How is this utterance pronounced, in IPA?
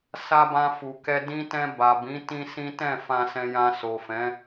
sa˧bã˧ fu˨kɛ˧ dĩ˧tɛ̃˧ ba˨bĩ˨˦ tĩ˦sĩ˦ tɛ̃˦˨fã˧ sɛ̃˧jã˧ so˨fɛ̃˨˦

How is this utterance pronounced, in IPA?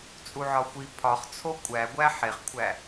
t͡sʼuʕɒxʷi pʰɒχt͡sʰo kʷʼæɡʷæ ħeχkʷʰæ

